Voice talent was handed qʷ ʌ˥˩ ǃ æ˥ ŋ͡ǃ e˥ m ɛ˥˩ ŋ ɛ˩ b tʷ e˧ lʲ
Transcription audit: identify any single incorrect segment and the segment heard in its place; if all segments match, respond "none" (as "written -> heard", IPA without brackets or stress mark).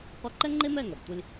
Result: æ˥ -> ɛ˥